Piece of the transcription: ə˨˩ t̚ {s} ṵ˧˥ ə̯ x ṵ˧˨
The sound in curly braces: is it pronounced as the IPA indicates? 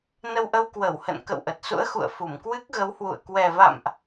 yes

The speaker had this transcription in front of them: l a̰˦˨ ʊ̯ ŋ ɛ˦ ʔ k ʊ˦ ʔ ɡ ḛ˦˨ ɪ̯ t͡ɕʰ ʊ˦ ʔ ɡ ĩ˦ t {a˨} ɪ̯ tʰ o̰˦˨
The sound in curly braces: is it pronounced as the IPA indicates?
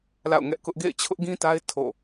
no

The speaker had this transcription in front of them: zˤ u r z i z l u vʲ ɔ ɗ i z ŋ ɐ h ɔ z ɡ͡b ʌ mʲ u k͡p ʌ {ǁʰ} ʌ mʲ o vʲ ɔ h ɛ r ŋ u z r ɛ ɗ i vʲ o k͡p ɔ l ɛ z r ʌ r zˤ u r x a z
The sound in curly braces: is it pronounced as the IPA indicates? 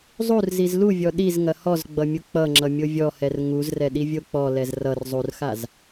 no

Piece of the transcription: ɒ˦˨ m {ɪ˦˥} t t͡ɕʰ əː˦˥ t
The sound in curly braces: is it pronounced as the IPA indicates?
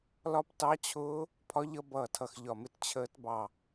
yes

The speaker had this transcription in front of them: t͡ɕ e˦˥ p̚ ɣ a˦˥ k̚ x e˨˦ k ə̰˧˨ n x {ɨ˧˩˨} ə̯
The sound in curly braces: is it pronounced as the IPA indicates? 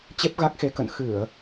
yes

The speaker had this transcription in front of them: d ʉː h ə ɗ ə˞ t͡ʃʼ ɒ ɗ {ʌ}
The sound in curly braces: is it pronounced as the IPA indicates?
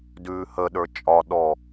no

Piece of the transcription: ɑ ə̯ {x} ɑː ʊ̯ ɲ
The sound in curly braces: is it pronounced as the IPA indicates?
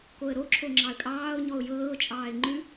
no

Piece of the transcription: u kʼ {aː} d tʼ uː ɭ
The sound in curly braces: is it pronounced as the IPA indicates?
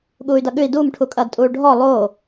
no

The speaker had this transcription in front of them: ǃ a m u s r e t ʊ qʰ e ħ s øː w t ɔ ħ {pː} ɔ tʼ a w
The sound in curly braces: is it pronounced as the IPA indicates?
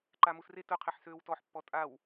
yes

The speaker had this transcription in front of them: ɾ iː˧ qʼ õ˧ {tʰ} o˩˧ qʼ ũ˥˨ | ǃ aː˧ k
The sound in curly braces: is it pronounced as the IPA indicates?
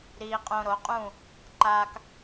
no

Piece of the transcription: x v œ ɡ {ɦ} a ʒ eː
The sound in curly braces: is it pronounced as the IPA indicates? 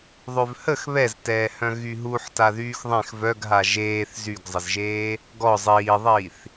yes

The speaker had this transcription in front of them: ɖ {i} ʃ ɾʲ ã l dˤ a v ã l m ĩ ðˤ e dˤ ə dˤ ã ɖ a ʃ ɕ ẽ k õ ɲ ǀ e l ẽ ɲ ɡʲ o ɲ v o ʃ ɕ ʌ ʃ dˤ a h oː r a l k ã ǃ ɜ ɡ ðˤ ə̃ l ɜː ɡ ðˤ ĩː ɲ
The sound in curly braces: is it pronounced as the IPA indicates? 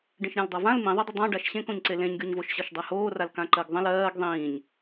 no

